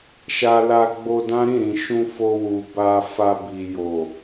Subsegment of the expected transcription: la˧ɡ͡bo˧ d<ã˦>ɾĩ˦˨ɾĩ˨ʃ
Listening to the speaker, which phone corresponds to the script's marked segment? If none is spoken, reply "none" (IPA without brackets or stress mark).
ã˦